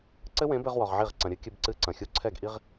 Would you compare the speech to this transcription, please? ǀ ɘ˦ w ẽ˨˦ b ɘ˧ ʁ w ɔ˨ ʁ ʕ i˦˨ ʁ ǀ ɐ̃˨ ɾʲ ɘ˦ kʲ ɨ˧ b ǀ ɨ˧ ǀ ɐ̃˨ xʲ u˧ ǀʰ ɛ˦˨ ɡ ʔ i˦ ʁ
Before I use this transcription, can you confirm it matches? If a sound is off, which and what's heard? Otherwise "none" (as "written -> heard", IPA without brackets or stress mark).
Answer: none